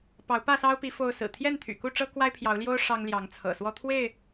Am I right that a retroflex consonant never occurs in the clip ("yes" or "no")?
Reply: no